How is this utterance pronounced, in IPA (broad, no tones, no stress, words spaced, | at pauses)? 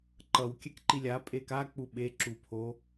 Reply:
ǃʌw kʲɛkǃilʲa pʼeka k͡puɓe ǁupʰo